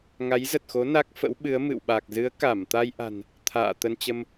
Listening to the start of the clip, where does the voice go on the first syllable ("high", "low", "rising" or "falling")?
rising